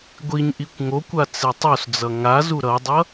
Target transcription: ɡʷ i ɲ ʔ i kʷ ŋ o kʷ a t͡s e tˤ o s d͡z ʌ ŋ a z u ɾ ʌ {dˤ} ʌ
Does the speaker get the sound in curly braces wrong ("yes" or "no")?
no